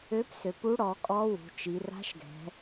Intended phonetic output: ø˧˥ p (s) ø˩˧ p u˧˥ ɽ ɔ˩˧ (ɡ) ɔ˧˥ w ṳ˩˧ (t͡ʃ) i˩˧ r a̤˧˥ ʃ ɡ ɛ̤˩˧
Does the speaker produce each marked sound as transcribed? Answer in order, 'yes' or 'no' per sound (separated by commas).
yes, no, yes